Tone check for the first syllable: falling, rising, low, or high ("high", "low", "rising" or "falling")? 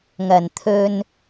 low